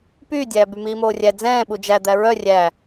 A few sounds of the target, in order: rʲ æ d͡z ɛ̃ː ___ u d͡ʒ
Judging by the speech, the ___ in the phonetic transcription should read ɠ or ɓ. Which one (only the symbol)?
ɓ